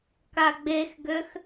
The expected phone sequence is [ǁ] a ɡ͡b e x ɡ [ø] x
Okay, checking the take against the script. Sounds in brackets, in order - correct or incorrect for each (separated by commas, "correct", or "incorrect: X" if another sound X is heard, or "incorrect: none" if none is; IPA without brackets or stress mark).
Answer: incorrect: k, correct